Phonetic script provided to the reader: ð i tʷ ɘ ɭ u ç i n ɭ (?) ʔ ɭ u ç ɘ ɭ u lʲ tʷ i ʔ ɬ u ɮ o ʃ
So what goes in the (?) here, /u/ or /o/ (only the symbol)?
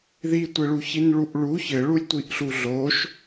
u